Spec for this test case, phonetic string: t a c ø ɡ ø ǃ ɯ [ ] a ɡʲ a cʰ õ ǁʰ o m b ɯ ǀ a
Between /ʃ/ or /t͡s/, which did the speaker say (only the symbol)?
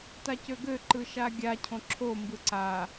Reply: ʃ